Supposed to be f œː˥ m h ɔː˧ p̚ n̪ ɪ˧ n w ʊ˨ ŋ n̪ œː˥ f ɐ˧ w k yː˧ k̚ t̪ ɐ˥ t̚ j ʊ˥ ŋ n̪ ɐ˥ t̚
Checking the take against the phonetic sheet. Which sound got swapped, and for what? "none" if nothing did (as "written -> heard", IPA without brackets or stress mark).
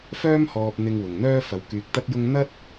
n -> ŋ